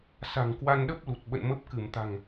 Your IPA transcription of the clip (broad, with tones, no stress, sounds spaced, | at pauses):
s a̤˨˩ ŋ k w a˧ n ɗ ə˦˥ p̚ l u˨˩ t̚ ɓ ə̰˧˨ n m ə˦˥ p̚ k ɨ˧˩ m t̪ a̤˨˩ ŋ